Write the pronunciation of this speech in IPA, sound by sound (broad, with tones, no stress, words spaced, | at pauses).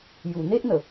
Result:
ju˨˩n̪e˦ʔn̪ə˨˩